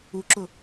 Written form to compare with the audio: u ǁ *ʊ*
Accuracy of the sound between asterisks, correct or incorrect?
correct